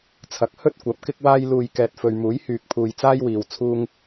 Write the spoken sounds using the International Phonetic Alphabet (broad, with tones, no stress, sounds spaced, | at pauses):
t͡sʰ ɐ˨˥ k̚ h ɵ˥ t̚ kʷ ɐ˨˥ p̚ k ɪ˥ k̚ w aː˥ j l uː˧ j k ɛː˨ t̚ f ɵ˨ ɥ m uː˨˥ j h yː˧ k̚ pʰ uː˧ j t͡s aː˥ j w iː˨ w t͡sʰ uː˥ ŋ